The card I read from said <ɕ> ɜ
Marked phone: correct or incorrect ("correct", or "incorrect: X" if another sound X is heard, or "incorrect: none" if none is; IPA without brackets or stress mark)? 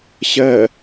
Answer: correct